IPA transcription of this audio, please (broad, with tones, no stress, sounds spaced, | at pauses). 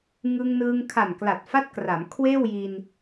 ŋ ɯ˧ ŋ n ɯː˧ ŋ kʰ a˨˩ n k l a˨˩ t̚ f a˦˥ t̚ k r a˩˦ m kʰ w eː˥˩ w j i˧ n